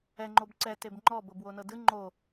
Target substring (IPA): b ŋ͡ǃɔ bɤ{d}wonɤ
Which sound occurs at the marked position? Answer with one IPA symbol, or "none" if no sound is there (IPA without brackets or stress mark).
b